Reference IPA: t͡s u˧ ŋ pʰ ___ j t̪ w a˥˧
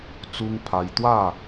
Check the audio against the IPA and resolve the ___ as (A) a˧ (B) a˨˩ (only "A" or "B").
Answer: A